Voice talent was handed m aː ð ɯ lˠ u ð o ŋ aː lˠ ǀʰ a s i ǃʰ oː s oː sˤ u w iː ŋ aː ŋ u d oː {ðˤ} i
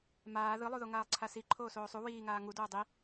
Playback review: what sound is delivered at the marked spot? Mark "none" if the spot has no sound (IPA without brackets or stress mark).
dˤ